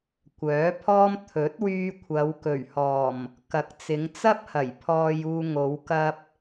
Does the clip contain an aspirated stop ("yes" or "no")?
yes